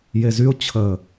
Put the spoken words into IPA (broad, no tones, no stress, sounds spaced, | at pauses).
j e z y ʊ̯ t͡ɕʰ ə